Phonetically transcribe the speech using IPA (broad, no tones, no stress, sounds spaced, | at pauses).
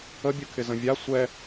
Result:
ə bʲ ɯ kʰ ɪ z ə̃ vʲ a sʷ ɛ